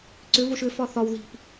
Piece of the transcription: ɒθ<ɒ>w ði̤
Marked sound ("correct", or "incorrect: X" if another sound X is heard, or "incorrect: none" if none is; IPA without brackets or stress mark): correct